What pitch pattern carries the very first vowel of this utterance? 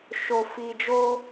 low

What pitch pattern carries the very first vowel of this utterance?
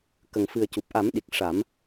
low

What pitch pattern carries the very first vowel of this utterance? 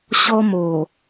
high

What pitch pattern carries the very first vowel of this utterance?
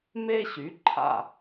high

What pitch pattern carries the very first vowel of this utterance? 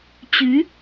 rising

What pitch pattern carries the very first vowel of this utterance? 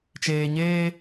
low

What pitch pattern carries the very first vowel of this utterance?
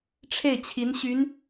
falling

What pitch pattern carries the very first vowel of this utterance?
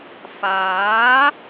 rising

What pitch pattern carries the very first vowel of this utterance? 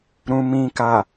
low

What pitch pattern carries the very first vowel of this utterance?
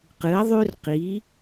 rising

